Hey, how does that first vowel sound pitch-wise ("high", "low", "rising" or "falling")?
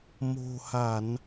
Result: low